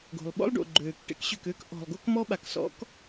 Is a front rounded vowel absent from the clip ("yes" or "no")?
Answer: no